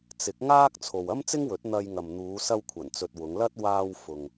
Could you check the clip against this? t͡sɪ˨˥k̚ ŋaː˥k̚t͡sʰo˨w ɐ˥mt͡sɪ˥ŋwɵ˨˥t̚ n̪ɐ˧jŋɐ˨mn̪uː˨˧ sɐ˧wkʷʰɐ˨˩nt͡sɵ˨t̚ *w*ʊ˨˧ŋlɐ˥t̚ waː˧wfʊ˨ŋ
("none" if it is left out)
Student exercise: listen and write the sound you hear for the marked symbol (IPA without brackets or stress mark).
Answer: w